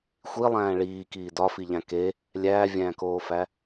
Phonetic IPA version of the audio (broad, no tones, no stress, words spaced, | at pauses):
xʷilˠæ̃ː ɭiːkiː dɒfiʎæ̃ ke | lʲæːvʲæ̃ːkoːfæ